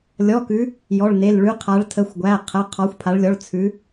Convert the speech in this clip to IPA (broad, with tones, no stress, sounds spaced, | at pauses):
lʲ ɔ˧˥˧ k ʉ˧˥ | j ɔ˧˥˧ ɭ n e˧˥˧ l ɭ ʉ˧˥ qʰ a˧˥ ɭ tʰ ə˧˥˧ xʷ ɡʷ æ˧˥˧ qʰ ə˧˥˧ qʰ ɔ˧˥ xʷ pʰ a˧˥ ɭ lʲ ɔ˧˥˧ ɭ t͡sʰ ʉ˧˥